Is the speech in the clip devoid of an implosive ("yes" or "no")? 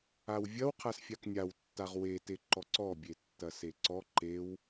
yes